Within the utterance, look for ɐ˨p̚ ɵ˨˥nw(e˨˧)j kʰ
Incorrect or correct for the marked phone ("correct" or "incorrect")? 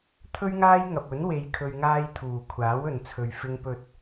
correct